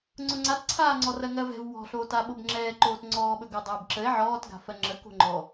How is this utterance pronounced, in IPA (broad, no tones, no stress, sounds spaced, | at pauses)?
ŋ͡ǀ ʊ ŋ͡ǀ a t ǀʰ aː ŋ͡ǀ ɔ r ɜ ŋ ɜ v ɛ̤ v w ɔ̤ ɬ oː t a ɓ o b ŋ͡ǁ ɛː ǃ oː t ŋ͡ǀ ɔː ɓ ɵ ɡ ɵ dˤ ɵː b ǁ ə e̯ ʕ ɔː t ɡ a̤ f ɜ ŋ͡ǁ ə k o̤ ŋ͡ǃ ɔ